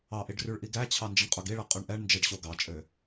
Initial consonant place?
glottal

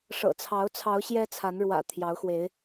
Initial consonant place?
retroflex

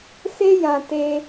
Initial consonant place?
alveolar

